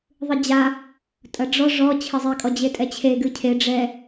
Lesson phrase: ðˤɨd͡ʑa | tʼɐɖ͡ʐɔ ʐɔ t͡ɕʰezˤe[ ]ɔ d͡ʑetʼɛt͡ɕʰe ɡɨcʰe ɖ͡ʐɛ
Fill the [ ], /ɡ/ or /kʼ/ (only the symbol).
kʼ